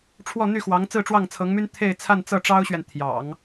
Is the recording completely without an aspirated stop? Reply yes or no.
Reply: no